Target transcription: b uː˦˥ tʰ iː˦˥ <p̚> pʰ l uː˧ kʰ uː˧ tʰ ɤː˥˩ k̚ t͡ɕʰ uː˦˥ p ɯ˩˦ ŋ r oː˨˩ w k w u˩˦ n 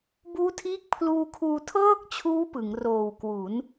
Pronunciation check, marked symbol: incorrect: k̚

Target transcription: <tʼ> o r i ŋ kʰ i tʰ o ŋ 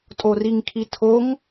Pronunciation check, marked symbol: correct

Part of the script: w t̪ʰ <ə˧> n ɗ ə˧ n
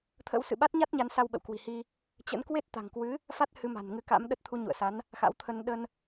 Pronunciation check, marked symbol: correct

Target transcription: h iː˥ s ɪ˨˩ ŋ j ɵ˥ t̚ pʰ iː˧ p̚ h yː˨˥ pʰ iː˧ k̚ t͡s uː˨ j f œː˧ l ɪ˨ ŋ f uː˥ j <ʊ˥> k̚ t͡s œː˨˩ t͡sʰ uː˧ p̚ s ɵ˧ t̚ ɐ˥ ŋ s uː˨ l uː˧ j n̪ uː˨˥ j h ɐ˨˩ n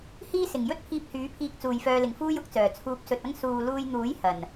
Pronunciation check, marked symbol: correct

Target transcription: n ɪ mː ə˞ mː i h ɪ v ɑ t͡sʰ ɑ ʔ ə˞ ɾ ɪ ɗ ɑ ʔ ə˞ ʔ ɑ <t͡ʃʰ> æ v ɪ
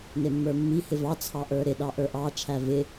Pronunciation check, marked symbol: correct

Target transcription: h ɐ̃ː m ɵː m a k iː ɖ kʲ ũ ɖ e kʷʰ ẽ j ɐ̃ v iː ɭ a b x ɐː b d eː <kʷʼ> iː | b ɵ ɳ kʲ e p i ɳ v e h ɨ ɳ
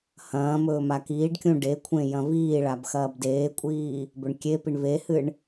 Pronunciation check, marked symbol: correct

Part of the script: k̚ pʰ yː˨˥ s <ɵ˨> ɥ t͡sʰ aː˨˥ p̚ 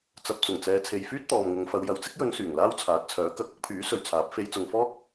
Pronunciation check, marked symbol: correct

